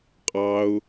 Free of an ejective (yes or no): no